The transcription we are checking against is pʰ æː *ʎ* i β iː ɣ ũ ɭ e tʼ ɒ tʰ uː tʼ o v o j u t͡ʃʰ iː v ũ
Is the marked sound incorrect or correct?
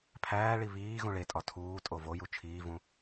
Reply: incorrect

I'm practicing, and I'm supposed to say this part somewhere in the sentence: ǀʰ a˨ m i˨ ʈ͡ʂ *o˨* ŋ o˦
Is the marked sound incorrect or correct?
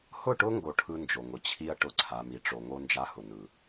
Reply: correct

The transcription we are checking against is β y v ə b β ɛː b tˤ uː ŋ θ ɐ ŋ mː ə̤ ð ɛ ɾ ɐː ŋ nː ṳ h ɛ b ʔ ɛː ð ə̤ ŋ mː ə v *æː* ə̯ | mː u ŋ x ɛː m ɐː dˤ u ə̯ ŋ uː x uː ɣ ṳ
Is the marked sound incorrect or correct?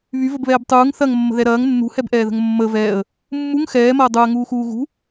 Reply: incorrect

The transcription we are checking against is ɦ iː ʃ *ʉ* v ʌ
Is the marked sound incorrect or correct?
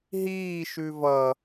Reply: correct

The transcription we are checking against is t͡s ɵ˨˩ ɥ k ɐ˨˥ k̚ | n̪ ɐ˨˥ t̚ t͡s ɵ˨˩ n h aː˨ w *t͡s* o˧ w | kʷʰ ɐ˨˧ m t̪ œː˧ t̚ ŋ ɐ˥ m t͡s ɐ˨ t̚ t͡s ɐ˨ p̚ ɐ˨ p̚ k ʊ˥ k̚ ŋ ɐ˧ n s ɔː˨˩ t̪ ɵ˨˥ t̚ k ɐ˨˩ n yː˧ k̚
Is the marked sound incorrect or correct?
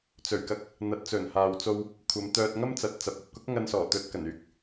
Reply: correct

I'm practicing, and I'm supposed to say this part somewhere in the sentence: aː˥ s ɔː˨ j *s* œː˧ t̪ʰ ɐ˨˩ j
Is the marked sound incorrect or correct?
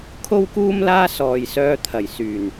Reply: correct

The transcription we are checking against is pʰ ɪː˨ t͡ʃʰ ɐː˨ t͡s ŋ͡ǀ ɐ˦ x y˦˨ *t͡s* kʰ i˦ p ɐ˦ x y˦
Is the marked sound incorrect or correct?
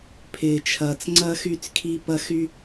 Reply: correct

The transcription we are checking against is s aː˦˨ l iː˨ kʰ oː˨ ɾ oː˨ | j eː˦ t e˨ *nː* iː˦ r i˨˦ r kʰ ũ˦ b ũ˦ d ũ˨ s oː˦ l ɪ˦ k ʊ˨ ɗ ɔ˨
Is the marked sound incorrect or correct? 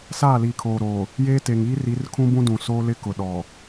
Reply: incorrect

